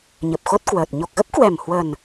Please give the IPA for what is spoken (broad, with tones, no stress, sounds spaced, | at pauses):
ɲ ə˨˩ p̚ x o˦˥ t̚ k w əː˨˩ t̚ ɲ o˨˩ k̚ ɣ ə˦˥ p̚ k w ɛ˨˩ m h w ə˨˩ n